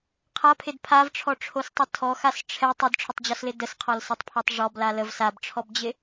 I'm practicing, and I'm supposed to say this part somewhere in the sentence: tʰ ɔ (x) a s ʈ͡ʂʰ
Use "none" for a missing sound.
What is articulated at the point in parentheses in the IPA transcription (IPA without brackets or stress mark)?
x